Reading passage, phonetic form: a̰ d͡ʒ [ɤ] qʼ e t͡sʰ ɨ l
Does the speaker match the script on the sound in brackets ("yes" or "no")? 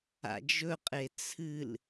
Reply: no